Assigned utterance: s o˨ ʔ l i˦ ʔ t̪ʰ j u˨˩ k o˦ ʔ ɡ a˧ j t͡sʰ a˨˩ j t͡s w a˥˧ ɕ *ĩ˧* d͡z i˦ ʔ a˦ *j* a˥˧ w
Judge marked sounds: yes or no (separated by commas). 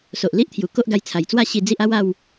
no, no